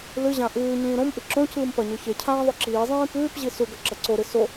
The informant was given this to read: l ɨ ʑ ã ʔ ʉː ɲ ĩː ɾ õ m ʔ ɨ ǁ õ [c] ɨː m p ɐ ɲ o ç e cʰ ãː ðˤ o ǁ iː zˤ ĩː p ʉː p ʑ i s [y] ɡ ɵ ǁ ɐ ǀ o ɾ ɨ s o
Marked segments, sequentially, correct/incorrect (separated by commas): correct, incorrect